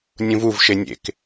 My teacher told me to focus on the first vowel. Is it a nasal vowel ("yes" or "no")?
yes